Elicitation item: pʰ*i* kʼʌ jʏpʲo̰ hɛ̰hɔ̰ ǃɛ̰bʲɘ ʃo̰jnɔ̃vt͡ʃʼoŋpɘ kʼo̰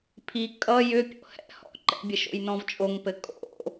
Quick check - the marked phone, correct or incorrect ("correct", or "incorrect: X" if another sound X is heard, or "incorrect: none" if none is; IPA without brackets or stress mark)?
correct